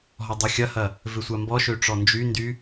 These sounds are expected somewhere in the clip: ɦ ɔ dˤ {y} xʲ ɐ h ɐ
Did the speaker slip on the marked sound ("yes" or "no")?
no